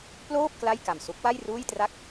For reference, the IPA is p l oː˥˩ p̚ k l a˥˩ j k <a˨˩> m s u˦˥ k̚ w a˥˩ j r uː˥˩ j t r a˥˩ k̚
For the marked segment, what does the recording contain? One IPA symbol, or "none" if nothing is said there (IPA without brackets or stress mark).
a˨˩